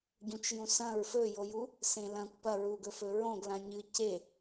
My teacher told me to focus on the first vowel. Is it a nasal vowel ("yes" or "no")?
yes